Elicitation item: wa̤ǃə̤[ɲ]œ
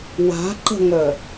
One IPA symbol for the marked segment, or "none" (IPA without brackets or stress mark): ŋ